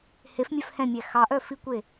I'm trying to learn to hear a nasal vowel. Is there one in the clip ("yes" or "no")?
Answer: yes